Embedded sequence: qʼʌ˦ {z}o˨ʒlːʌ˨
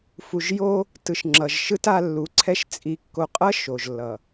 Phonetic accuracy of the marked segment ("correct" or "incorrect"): incorrect